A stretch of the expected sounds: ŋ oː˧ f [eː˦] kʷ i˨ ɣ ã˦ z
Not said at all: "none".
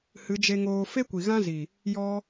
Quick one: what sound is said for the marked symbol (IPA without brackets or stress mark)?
e˦